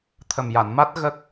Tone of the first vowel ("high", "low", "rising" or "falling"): low